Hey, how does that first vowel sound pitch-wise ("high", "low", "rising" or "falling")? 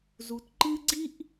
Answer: low